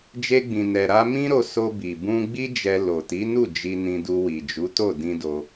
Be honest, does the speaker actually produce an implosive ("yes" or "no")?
no